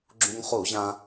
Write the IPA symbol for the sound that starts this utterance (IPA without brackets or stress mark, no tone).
ɡ͡ǁ